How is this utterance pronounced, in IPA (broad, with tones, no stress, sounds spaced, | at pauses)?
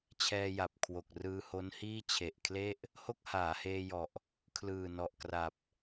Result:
t͡ɕʰ ɛː˧ j a˨˩ p̚ kʰ w o˨˩ k̚ r ɯː˧ h o˦˥ n h iː˥˩ t͡ɕʰ e˨˩ ʔ kʰ l e˥˩ ʔ | h o˥˩ k̚ h aː˩˦ h eː˧ j ɔ˨˩ ʔ | kʰ l ɯː˨˩ n ɔ˨˩ ʔ k r a˨˩ p̚